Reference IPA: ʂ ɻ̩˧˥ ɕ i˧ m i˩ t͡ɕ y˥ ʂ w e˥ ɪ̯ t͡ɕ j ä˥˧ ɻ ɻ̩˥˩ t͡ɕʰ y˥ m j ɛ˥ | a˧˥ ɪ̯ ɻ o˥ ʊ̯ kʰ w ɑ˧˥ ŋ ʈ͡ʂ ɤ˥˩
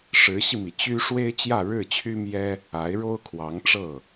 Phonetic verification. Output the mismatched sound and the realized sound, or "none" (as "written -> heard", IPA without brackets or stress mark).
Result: none